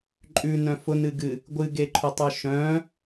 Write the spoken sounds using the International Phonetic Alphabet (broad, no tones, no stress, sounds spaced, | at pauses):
ǃʼ ʉ n œ̃ f ʊ n ɨ ɡ ɨ | ɡʷ ɨ ɡ e ǃʰ ʊ tˤ œ ʃ œ̃